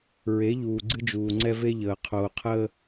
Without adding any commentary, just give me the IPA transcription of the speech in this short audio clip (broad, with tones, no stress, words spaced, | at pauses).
ɹe˨˦ʎuː˨ ɡ͡ǀɨ˦d͡ʒuː˨ŋ͡ǀɛ˦ ve˦ʎəː˨ qʰoː˨qʰəː˦